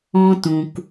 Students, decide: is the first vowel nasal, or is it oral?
nasal